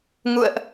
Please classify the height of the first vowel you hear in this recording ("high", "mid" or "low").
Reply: high